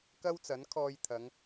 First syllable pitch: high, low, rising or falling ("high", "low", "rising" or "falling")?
high